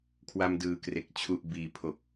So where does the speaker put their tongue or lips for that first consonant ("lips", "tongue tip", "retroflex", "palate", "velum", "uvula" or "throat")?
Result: velum